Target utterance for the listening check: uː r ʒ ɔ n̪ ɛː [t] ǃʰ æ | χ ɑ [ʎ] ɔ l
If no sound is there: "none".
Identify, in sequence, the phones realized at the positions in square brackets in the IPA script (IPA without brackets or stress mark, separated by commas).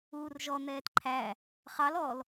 t, l